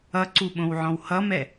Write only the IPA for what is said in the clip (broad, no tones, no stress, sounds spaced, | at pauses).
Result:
ʌ ǀ u ɓ õ w ʕ ɔ̃ w h ʌ m ɛ